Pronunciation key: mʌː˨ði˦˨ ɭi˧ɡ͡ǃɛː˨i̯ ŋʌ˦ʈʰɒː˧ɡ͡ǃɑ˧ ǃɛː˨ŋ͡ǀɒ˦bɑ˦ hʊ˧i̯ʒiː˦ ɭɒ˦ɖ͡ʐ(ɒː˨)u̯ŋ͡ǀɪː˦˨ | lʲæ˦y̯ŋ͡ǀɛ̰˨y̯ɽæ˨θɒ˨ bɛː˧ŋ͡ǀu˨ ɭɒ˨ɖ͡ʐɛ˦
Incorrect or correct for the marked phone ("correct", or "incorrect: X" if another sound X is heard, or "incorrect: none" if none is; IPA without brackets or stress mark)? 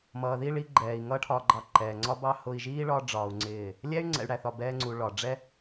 incorrect: ɒː˧